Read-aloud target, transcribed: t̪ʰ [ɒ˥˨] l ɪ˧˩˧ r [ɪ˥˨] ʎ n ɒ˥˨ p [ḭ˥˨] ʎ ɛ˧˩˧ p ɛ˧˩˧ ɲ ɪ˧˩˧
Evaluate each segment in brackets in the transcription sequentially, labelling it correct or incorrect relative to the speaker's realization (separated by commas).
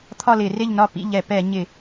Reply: correct, correct, correct